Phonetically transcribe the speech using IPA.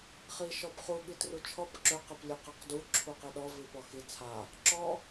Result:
χ i ʃ ɔ b χ u ɠ i t r u t͡ʃʰ ɔ p ǁ ø q e p lʲ e q a q d u ǁʰ u q e ɗ ɔ v i p ɔ x i t͡sʰ a | ǁ ɔ

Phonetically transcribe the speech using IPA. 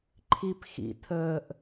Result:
ǃʰ i p x ḭ tʰ əː ʔ

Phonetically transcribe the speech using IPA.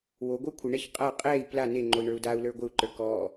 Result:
w o ɡʷ ə˞ kʷʰ ɪ ɳ ɛ ç qʼ a qʼ ɛ i̯ p l a n e ŋ͡ǃ o i̯ ɳ ə˞ u̯ d a u̯ l ə˞ ɡʷ ɪ u̯ ǃ ə˞ k ɔ

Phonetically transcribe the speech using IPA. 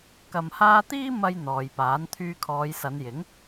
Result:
k ɐ˧ m h aː˥ t̪ iː˥ m ɐ˧ j n̪ ɔː˨ j p aː˨˥ n t̪ʰ yː˧ kʰ ɔː˨˧ j s ɐ˨˧ n j ɪ˨˥ ŋ

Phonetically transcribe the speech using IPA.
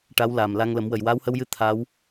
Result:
ʈ a˧˥ w l aː˨˩ m l a˧ ŋ l ə˨˩˦ m w ə˨˩ j w aː˧˥ w h ə˧ w j ɨ˧ t̪ʰ a˧˥ w

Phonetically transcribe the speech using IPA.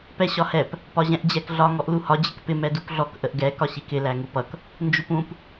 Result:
p ɛ ɕ ɒ h ɛ p | p ɒ ʑ ɛ̃ ʔ d͡ʑ ɛ k ɮ ɒ ŋ ɔ ʔ l u h ɒ d͡ʑ ɪ k p ɪ m ɛ d u k ɮ ɔ k ʔ ə ʔ ɡ ɛ k ɒ ɕ i k ɪ l æ ŋ u p ʌ k | n d͡ʒ u p ũ p

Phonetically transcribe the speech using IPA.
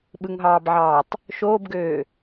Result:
ɓ ɯ ŋ ɦ ɑː b ʕ ɑː tˤ | ʃ oː b ɡ øː

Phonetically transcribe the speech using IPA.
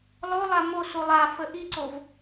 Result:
lˠ o lˠ a m o s u lˠ a f ə ʔ i ǀ o v

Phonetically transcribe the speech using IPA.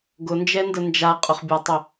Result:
ɡ ʊ n d͡ʒ ɛ n d ə n d͡ʒ a qʼ ʊ χ bʲ a tˤ ʏ

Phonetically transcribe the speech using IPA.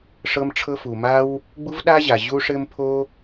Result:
ʂ ɤ˥ m ʈ͡ʂʰ ɤ˥ f u˩ m a˥ w | ɡ͡b u˥ v ɗ a˥ ʑ a˩ ʑ u˥ ʂ ɘ˥ m pʰ o˥

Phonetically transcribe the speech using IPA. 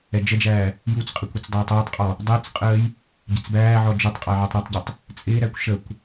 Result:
ɛ d͡ʒ ə d͡ʒ æː | j u t͡s qʼ ɪ kʷ ʊ t͡s dˤ əː tˤ ɛː tˤ qʼ ɔ | dˤ ɪː t͡s qʼ əː j | ɟ ɛ t͡s b æː ʕ ɔ d͡ʒ ʊ tˤ qʼ æ ʕ ɛ tˤ ɾ ɔ tˤ ɟ ʌ tˤ | t͡sʼ ɪː ɾ æ kʷ ʃ ə kʷ

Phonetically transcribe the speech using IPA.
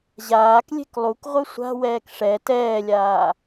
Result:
ʑ aː k lʲ e̤ k lˠ u k ʁʷ ɯ sʷ a̤ w ɛː k ʂ ɛ t ɛː lʲ aː

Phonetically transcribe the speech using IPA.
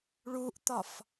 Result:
ɭ u ʔ t̪ ɒ f

